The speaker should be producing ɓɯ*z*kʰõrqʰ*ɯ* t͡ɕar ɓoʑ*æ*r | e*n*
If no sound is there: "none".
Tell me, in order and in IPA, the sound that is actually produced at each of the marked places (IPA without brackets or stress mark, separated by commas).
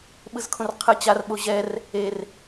z, ɯ, ɛ, r